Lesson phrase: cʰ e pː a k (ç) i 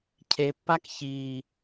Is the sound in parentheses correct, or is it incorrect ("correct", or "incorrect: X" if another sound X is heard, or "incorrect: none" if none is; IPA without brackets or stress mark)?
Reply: correct